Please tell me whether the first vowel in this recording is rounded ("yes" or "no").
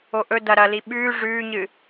yes